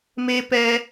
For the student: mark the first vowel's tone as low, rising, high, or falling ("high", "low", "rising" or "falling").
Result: high